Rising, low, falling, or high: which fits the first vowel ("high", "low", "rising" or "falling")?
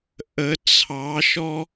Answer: rising